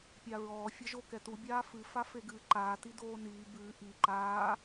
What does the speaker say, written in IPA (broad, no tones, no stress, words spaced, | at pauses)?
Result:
pʲaɹɔː fʲɛʒo kɛtu bʲaːfɨ fafeɡɨːǃaː tidoːniː bɨː ʔi ǃaː